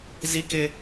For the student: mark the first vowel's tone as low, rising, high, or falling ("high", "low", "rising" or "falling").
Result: high